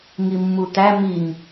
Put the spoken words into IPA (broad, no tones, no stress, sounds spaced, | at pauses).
ŋ i mː u t̪ æ m i ŋ